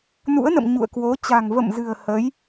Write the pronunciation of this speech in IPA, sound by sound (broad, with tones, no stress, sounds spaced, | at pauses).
n ṵ˧˥ ə̯ n ə̰˧˨ m ɲ ṵ˧˨ ə̯ k w o˨˦ t͡ɕ a̤˨˩ ŋ v ə̰˧˨ m z ɨ̤˨˩ ə̯ h ə˨˦ j